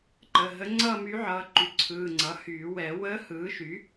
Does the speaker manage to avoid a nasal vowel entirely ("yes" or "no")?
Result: yes